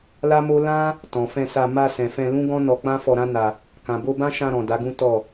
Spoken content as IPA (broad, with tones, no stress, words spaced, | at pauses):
la˦mo˦ lã˦ | tɔ̃˨fɛ̃˧sa˧ ma˧ sɛ̃˨fɛ̃˧lũ˦ɡɔ̃˦ nɔ˧k͡pã˦ fɔ˧ɾã˦na˧ | kã˨bo˧bã˦ ʃã˧ɾɔ̃˨ da˨˦ɡũ˦ tɔ˦˨